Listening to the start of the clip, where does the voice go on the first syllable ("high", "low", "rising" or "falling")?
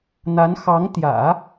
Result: rising